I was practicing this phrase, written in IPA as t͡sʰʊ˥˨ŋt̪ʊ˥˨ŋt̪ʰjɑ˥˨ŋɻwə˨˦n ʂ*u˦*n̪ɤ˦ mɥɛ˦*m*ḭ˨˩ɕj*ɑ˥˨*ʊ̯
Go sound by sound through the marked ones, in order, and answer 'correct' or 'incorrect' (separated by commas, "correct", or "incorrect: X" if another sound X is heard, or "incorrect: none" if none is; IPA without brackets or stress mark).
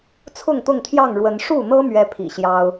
incorrect: u˥˨, incorrect: pʰ, incorrect: ɑ˦